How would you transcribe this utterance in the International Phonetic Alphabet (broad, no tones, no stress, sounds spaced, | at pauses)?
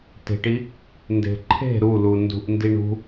t e̤ ʈ i | n d e̤ ǃʰ e̤ ɾ u l u n d ṳ ʔ n d i ɳ ṳ